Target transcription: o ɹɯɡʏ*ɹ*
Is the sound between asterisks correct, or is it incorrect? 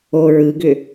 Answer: incorrect